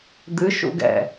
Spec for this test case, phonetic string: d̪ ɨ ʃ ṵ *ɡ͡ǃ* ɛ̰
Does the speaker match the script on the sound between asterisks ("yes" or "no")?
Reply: no